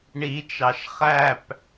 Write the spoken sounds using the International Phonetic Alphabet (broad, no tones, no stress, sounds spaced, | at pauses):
ɳ i t͡ʃ ɑ ʃ χ æ p